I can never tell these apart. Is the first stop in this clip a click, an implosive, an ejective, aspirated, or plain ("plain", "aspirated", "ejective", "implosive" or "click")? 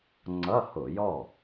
click